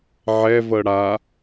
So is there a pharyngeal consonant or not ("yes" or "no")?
yes